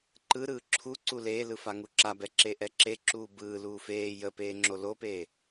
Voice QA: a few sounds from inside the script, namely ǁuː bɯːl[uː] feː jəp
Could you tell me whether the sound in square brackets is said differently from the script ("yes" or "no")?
no